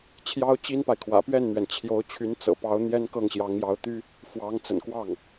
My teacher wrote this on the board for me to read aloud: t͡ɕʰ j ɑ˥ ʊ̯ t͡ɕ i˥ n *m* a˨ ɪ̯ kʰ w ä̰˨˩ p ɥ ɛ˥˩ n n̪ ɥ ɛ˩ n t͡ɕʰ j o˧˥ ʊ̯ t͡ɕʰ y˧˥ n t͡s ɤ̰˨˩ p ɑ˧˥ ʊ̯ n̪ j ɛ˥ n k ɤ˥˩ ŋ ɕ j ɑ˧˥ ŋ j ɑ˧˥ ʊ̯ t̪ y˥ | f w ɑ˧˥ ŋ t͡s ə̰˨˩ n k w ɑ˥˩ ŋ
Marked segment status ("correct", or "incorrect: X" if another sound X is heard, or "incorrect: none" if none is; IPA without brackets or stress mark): incorrect: p